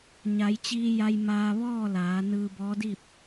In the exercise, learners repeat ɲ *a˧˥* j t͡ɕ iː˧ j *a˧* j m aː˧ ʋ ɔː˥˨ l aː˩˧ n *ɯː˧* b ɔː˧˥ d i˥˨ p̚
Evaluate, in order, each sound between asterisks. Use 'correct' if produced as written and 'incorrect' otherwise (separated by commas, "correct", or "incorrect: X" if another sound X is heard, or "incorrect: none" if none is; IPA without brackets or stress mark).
incorrect: a˩˧, correct, correct